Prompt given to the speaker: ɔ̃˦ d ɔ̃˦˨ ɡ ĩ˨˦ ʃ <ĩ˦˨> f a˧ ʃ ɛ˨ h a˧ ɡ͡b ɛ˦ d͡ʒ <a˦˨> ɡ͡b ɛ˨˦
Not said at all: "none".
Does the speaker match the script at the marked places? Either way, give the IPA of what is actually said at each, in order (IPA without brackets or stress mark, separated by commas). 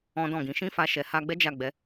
ĩ˦, a˦˨